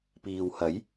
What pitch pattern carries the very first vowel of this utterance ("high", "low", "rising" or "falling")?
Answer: low